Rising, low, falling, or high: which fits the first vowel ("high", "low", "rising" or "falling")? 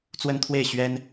high